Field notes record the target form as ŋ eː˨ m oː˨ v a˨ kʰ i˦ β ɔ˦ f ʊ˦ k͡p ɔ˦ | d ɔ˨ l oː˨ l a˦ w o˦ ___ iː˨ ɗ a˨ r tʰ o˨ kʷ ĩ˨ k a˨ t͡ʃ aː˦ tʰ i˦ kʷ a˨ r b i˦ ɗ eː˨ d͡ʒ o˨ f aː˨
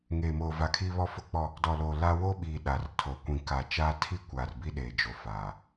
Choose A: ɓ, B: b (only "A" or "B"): A